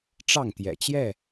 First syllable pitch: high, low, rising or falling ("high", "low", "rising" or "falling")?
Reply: falling